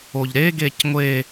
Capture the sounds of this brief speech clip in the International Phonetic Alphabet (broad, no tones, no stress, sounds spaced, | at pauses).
o ʎ ɾ e ɡ e c ŋʷ e